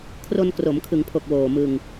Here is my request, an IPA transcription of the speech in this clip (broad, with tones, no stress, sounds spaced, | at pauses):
kʰ r o˧ n k r o˩˦ m kʰ ɯ˩˦ ŋ pʰ o˨˩ k̚ w oː˨˩ m ɯ˧ ŋ